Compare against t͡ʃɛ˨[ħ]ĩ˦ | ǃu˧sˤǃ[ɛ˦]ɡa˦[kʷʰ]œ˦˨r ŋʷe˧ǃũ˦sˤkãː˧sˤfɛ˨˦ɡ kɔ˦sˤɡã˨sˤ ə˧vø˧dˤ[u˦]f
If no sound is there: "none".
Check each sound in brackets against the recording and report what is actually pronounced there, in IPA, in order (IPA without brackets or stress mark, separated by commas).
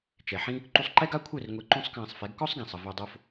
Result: ħ, ɛ˦, kʷʰ, o˦